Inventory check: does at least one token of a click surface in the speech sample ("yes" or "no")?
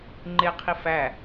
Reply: yes